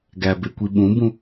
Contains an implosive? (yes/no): yes